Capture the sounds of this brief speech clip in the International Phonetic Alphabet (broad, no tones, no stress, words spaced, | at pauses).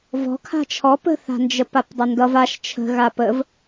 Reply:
vɔ̤ kʰa̤t͡ʃʰɔ pə̤θa̤nd͡ʒə papdˤʌndʌv aʃ t͡ʃʰə̤ ɣapəv